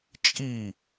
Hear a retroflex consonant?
no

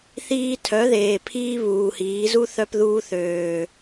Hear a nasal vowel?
no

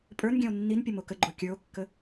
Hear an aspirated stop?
no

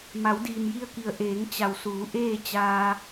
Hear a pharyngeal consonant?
no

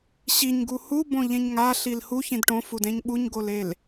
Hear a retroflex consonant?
yes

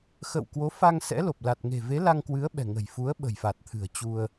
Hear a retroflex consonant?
no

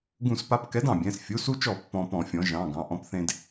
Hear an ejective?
no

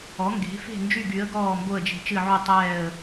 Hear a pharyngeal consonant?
yes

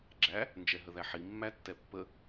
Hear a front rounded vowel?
no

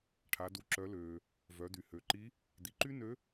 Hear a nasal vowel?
no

